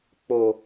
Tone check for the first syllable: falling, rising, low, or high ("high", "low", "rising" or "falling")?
low